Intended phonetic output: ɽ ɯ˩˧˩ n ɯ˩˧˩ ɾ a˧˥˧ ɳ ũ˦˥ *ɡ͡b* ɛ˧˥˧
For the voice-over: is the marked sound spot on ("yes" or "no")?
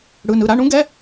no